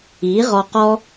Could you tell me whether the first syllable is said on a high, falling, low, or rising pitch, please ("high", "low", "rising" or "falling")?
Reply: rising